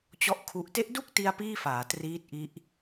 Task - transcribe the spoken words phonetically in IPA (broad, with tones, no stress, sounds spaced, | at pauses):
t͡ɕ ɔ˥˩ ʔ kʰ u˦˥ ʔ t e˦˥ ʔ d u˥˩ k̚ t i˧ a̯ p iː˥˩ f aː˩˦ t r iː˦˥ t̚ ʔ i˦˥ ʔ